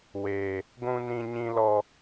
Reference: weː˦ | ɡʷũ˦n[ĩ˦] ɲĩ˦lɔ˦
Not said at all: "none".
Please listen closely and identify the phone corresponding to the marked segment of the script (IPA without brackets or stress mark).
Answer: ĩ˦